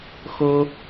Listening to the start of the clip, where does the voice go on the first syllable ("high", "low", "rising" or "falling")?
high